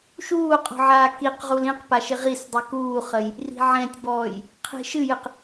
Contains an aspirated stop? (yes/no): yes